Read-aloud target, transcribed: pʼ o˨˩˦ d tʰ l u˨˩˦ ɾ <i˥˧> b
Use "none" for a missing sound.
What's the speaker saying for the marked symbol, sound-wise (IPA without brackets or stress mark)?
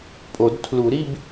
i˥˧